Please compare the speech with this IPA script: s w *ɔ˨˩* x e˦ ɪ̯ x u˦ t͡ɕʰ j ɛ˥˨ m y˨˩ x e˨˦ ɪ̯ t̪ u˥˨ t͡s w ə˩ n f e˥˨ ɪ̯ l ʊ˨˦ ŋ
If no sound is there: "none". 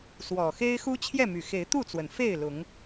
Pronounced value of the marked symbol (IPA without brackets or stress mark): ɔ˨˩